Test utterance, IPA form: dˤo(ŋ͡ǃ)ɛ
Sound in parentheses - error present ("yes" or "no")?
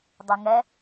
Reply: yes